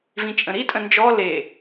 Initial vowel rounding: unrounded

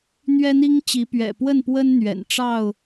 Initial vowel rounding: unrounded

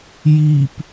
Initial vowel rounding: unrounded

